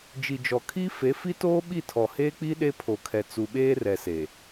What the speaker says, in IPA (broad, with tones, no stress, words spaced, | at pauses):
d͡ʒi˨d͡ʒɔ˨ kʰi˦fe˨˦fi˦toː˦ ɓi˦˨tʰɔ˨heː˦k͡pi˦ ɗe˦pʰo˨kʰɛ˨ t͡su˨ɓeː˦rɛ˨se˨